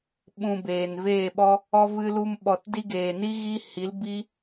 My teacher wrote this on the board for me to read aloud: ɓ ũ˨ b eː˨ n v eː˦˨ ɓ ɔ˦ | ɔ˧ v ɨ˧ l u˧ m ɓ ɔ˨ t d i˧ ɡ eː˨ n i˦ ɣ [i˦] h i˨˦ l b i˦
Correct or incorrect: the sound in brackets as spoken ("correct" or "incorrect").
correct